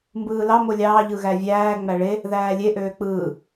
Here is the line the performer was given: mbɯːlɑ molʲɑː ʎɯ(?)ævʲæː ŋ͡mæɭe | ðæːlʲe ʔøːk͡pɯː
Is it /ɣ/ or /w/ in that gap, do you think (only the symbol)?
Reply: ɣ